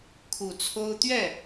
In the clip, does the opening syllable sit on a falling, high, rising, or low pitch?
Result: low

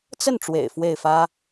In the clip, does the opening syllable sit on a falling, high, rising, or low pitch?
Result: falling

